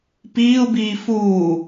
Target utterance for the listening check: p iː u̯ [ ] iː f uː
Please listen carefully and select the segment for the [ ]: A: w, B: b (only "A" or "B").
B